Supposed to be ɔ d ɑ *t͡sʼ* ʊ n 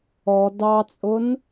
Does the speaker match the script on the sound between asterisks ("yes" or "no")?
yes